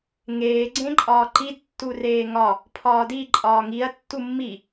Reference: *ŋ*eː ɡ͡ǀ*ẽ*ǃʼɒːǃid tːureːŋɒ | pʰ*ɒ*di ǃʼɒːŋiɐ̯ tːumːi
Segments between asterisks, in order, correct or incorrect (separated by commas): correct, correct, incorrect